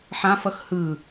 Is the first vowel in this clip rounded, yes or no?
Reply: no